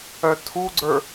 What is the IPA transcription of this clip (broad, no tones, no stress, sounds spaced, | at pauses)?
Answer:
œ tʰ u ɡ͡ǀ ə˞